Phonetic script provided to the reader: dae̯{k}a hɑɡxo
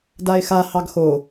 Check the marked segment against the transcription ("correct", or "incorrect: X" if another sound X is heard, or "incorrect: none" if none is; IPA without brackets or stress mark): incorrect: x